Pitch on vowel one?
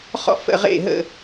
high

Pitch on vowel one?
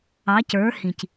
rising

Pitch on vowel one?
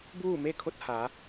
falling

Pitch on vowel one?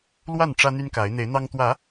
falling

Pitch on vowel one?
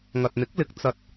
low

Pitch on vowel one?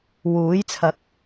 rising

